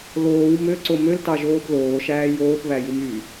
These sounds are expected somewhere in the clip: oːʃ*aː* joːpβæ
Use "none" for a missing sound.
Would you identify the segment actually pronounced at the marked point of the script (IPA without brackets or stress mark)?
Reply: æː